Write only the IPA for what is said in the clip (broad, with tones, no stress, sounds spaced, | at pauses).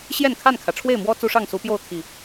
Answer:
ɕ j ɛ˥˨ n kʰ a˥˨ n kʰ ä˩ ʈ͡ʂʰ w e˥˨ ɪ̯ m w ɔ˦ t͡s u˦ ʂ ɑ˥˨ ŋ s u˨˦ p j o˥˨ ʊ̯ t̪ʰ i˨˩